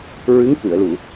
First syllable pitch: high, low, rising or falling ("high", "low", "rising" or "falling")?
rising